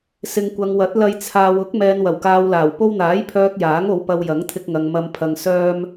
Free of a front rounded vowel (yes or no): no